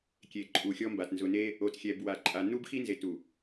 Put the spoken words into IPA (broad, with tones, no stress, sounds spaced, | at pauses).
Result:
kʲ e˨ ǃʼ u˨ xʲ ɔ˦ m b a˨ t n z ʊ˨ n e˦ | o˨ t xʲ ɛ˨ b w a˨ ǃʼ a˨ n u˦ b x i˦ n z e˨ t u˨